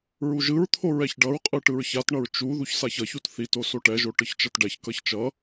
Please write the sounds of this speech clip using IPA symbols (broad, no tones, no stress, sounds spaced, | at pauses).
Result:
ɹ u ʒ ɯ ɹ t̪ʰ o ɹ ɛ ç ɖ ʌ ɹ qʼ ɯ ʈ ɯ ɹ ç a t ɳ ʌ ɹ t͡ʃ u ð u ç s a ç ʌ ç u t θ i t o s o ʈ ɛ ʒ o ʈ ɯ ç t͡ʃ ʌ t ɖ ɛ ç k ʌ ç t͡ʃ ʌ